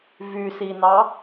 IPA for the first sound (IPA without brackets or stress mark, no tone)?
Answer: v